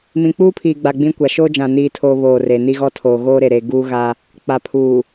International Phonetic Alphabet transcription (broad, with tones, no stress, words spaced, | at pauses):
mĩ˨k͡puː˦pʰiː˨ɡ͡ba˨ ɡ͡bĩ˦kʷa˨ ʃoː˦d͡ʒã˨ niː˨tʰoː˨ βoː˦˨re˨ ni˦ɣɔ˦tʰoː˨ ɣoː˦ɾe˨ɾe˨ ɡuː˦ɣa˦ | k͡pa˨pʰuː˨